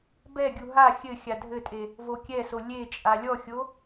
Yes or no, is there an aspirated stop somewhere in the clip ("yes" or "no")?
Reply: no